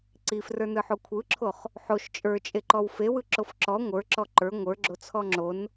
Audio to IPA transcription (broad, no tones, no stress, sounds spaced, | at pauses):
ǀ i f r ə˞ n ɯ ħ o kʷʰ ɯ ǁʰ o χ | ħ o ʃ t͡ʃʼ ə˞ t͡ʃʼ e ǃ ɔ w f e w ɯ ǁ o f ǁ ɔ ŋʷ ə˞ ǁ ɔ ǃ ə˞ ŋʷ ə˞ ɡ͡ǁ o t͡sʰ ɔ ŋ͡ǁ o n